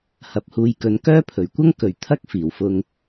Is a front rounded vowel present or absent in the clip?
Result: present